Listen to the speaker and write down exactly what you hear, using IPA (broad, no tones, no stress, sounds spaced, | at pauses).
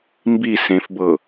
m b i s ẽ f b ɤ